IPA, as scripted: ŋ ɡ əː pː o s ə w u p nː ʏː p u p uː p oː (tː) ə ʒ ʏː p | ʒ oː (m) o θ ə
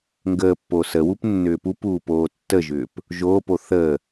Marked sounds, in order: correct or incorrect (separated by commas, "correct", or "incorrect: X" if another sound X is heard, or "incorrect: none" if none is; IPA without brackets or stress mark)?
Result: correct, incorrect: p